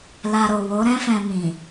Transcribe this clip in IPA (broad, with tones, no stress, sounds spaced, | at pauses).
l a˧ ɾ o˨ w o˨˦ ɾ ɛ̃˦ f ɛ̃˧ m ĩ˨